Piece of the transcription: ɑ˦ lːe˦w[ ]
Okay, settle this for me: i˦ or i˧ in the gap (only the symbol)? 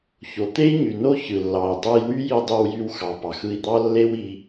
i˧